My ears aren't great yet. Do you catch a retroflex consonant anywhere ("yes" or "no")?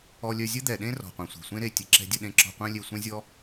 no